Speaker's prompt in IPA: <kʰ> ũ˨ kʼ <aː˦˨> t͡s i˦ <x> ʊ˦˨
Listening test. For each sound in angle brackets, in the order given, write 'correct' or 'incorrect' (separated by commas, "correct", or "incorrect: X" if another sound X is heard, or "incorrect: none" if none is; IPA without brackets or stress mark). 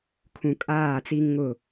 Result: correct, correct, incorrect: ŋ